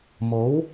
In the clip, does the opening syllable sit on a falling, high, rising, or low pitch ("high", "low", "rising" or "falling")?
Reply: rising